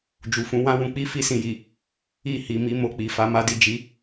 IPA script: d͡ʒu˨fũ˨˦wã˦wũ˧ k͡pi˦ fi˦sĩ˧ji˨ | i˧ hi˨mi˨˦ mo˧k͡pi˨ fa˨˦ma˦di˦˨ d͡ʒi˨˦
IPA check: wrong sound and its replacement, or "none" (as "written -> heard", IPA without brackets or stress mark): none